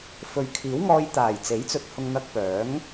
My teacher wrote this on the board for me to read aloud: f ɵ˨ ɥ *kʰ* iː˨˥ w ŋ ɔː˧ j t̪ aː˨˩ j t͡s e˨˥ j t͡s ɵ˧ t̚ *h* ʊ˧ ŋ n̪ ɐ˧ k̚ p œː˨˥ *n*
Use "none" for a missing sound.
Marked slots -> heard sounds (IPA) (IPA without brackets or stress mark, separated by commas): kʰ, h, ŋ